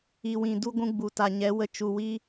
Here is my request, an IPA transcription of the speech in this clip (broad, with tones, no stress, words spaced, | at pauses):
i˨wĩ˨ du˧ɡʷũ˧ ɡ͡bu˨ta˨ɲɛ˨˦wə˧ t͡ʃu˨wi˧